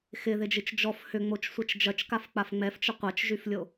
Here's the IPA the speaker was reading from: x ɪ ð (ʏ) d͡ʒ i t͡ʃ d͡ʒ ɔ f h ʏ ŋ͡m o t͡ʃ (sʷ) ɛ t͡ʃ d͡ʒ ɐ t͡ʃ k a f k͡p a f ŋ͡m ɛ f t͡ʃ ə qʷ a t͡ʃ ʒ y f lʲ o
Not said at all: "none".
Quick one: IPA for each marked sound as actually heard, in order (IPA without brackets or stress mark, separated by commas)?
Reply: ɪ, sʷ